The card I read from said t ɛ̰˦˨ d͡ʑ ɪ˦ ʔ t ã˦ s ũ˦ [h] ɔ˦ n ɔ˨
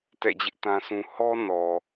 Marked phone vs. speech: correct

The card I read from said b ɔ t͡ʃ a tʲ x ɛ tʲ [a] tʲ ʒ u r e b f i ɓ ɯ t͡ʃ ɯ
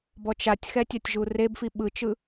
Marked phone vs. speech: correct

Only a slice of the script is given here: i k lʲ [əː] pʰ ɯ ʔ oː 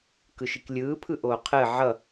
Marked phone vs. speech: incorrect: ɯː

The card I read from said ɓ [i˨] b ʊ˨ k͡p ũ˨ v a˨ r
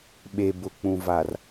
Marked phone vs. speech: incorrect: e˨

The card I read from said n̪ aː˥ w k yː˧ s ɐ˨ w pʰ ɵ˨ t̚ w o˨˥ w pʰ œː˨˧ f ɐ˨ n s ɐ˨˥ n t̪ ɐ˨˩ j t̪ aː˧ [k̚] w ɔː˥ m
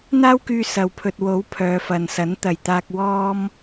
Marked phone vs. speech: correct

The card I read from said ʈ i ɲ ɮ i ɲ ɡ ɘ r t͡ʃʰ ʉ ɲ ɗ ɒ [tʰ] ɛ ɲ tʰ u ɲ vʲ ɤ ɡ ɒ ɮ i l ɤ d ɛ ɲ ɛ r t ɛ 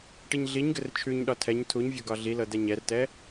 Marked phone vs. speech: correct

